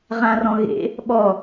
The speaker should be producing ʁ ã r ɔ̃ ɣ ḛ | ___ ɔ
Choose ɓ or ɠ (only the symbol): ɓ